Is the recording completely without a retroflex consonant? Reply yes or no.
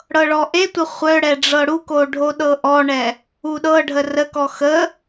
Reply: no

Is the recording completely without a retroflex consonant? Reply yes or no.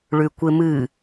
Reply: no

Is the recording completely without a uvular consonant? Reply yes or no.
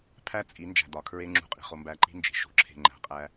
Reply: no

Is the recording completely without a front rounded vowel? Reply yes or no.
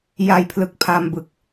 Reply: yes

